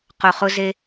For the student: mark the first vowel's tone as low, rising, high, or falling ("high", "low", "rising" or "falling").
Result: low